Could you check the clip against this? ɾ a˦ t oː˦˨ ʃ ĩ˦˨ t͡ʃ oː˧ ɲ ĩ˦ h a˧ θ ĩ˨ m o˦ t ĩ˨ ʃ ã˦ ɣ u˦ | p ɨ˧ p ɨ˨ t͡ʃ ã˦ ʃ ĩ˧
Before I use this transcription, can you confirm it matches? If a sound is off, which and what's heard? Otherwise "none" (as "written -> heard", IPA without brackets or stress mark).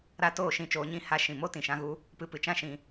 θ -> ʃ